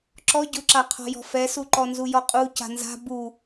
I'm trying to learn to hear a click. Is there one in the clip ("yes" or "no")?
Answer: yes